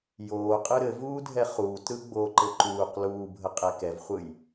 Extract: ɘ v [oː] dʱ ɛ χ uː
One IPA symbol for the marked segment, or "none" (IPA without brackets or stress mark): uː